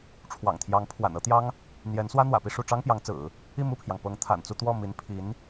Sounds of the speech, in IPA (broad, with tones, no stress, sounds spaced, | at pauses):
ʈ͡ʂʰ w ɑ̰˨˩ ŋ t̪ʰ j ɑ˧˥ ŋ pʰ w a̰˨˩ n ɤ˥ t̪ j ɑ˥ ŋ | n̪ j ɛ˧˥ n s w ä˥ n̪ w ä̰˨˩ p i˥˧ ʂ u˥˩ ʈ͡ʂ ɑ˥ ŋ p j ɑ˧˥ ŋ t͡s ɹ̩˨˩˦ | i˥˧ m u˥˩ pʰ j ɑ˩ ŋ p ɤ˧˥ ŋ t̪ʰ a̰˨˩ n t͡s u˥˧ t̪ w ɔ˥˩ m i˧˥ n pʰ i˧˥ n